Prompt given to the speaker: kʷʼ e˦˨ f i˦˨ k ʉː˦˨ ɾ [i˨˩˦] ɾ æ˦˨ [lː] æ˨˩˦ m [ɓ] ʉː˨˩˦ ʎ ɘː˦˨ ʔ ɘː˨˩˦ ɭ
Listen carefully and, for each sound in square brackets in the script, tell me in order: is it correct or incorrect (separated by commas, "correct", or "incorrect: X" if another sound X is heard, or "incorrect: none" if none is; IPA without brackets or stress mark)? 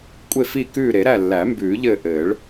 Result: incorrect: e˨˩˦, correct, incorrect: b